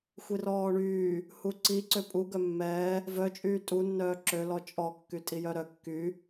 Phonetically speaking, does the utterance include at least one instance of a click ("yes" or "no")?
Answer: yes